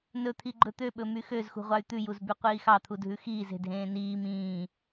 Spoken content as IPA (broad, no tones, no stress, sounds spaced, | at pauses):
n ɵ t̪ʰ i ɡ͡ǃ ɵ t̪ ø ɓ ɵ m y x ø z x ṳ ʁʷ ɑ y̯ t̪ ʉ j u z b y qʷ iː x ɑ t̪ʰ u dʱ ʉ x iː z e̤ dʱ ẽː n iː m ĩː